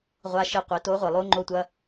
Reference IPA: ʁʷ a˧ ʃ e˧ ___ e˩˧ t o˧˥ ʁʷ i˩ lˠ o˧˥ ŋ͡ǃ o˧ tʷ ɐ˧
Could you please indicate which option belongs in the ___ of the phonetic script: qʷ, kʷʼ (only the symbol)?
qʷ